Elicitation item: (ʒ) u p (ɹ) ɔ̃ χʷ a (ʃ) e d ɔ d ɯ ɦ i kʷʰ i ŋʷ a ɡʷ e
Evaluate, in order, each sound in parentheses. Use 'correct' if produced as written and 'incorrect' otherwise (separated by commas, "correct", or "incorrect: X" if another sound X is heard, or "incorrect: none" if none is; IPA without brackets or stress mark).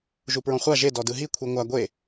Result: correct, correct, incorrect: ʒ